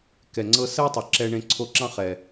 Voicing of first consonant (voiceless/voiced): voiceless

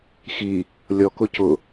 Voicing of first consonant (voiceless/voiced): voiceless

